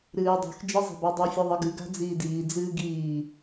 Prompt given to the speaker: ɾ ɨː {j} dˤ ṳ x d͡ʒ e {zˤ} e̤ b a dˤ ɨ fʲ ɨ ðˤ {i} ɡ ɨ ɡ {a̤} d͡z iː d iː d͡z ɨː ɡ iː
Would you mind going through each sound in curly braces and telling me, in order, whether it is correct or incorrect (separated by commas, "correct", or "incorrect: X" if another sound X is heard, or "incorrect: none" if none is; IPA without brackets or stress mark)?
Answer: correct, correct, incorrect: ɨ, correct